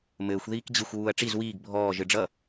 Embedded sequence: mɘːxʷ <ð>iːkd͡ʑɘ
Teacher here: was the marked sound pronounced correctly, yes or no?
yes